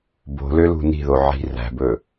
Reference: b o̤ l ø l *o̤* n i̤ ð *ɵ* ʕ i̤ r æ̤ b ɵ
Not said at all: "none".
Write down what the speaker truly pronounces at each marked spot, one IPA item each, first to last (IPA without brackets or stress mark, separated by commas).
ṳ, o